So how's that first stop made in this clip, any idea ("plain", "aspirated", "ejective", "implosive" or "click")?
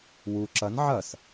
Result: click